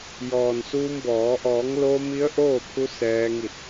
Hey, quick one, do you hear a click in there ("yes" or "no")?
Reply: no